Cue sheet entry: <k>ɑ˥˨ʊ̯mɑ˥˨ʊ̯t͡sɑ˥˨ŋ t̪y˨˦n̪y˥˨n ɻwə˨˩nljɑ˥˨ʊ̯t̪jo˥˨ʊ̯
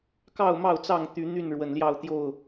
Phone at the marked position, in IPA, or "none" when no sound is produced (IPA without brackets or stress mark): k